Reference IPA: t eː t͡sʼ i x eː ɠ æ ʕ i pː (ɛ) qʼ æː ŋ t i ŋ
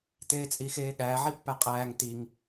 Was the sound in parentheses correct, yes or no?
no